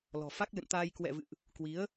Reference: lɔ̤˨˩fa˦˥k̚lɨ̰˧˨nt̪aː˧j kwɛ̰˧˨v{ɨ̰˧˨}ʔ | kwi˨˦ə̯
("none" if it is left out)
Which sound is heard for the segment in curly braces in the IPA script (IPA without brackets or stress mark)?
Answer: ɨ̰˧˨